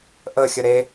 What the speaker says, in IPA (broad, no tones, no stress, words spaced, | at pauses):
ʔəxʲə ɾe